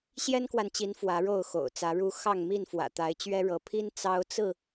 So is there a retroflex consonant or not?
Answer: yes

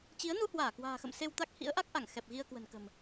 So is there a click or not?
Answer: no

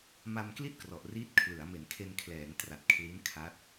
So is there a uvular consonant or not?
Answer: no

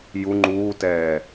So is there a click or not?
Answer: yes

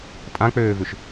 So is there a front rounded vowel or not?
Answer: yes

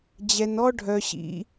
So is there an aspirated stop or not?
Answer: no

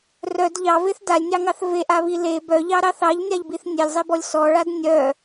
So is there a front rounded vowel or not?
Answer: yes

